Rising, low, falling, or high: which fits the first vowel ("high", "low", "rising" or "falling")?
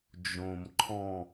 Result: low